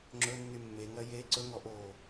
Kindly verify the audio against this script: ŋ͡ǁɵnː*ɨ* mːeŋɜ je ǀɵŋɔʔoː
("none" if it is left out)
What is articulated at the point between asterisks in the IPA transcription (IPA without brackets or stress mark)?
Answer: y